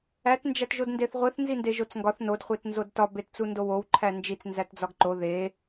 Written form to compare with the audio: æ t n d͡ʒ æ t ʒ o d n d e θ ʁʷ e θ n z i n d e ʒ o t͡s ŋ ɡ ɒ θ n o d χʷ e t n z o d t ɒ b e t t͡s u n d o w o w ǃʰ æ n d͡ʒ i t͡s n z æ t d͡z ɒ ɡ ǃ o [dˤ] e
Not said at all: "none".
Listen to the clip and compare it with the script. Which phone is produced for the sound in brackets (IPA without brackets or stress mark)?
ð